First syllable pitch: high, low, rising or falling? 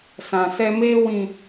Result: low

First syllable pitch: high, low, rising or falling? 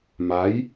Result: rising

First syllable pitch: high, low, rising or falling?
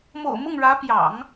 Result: low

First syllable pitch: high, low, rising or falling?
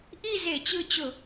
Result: falling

